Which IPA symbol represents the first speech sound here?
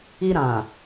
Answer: i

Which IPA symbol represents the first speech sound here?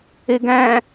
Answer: e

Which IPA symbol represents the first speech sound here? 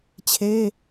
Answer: t͡ɕʰ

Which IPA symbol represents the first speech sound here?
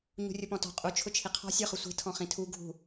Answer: ɲ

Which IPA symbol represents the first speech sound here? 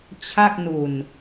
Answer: t͡ɕʰ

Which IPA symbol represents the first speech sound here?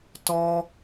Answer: t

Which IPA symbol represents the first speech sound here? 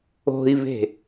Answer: o̤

